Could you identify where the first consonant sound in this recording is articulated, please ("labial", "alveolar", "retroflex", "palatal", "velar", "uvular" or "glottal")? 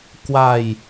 velar